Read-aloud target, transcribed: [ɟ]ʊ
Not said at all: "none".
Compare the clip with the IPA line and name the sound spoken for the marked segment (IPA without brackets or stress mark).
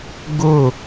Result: ɡ